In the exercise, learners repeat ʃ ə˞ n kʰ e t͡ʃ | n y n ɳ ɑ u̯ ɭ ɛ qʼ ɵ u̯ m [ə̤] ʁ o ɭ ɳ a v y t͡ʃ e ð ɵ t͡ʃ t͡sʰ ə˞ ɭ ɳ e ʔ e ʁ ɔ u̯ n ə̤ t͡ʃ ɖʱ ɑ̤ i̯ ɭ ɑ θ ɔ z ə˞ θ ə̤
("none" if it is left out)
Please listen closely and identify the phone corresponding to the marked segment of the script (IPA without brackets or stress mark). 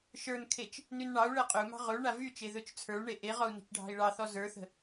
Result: ɑ̤